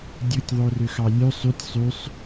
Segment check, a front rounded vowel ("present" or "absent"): present